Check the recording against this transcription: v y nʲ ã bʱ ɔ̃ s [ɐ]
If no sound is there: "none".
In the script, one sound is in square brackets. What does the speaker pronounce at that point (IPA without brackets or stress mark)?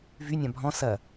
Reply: ɐ